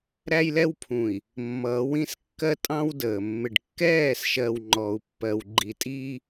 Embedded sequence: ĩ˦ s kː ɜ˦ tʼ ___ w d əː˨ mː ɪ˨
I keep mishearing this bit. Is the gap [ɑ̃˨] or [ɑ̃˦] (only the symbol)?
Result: ɑ̃˦